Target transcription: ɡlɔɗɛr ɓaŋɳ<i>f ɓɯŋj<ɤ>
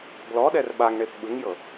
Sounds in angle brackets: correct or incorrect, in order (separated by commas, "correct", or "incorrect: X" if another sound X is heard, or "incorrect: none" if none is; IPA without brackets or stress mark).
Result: incorrect: e, correct